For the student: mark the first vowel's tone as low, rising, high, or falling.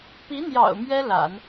rising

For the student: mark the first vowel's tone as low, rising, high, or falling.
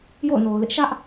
falling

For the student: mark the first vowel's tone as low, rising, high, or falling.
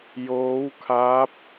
rising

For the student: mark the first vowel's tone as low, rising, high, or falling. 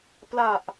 low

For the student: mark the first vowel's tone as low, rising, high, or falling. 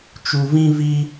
low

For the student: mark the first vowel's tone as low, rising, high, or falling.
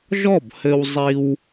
falling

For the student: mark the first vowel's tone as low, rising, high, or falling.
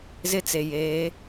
high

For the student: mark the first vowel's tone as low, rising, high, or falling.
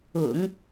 low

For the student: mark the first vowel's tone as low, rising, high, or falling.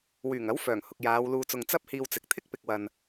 low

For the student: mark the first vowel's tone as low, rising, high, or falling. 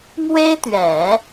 high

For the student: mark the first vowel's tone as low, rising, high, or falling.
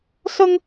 high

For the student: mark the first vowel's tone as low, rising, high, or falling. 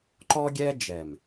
high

